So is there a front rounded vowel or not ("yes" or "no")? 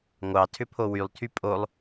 yes